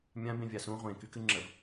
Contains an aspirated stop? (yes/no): no